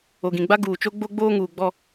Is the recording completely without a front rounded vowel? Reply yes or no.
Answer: yes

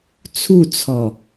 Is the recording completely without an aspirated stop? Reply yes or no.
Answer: no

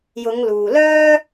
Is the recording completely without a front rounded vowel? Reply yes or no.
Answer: no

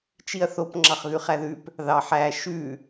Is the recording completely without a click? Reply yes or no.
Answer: no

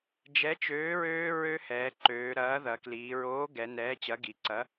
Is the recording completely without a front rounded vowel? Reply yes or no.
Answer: no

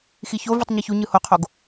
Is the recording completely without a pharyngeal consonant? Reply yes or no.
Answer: yes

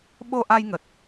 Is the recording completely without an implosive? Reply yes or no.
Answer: no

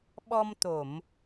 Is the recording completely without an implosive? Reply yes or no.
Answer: no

